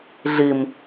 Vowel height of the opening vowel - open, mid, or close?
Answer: close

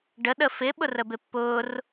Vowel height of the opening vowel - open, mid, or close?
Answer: mid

